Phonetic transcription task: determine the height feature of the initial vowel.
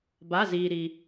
low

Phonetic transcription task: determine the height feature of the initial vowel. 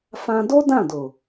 low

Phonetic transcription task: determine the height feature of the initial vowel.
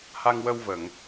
low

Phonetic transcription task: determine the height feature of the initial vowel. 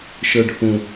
mid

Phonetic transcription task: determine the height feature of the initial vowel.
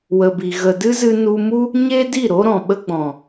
mid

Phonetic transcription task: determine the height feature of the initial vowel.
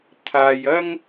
low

